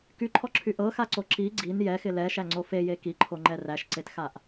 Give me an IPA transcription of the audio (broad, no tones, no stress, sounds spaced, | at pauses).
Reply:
k y ǃʰ ɔ ǁʰ y ʔ ɤ x a ǀ o ǁ i ɡ͡ǀ i n j ɛ x ɪ l ɛ ʃ æ ŋ͡ǀ o f e j e k i ǃʰ o ŋ͡ǃ ɛ r æ ʃ ǀ e t x a ʔ